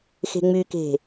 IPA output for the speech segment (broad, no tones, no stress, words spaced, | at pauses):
xe̤ŋ͡myke̤